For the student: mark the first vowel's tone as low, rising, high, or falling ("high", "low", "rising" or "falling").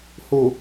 low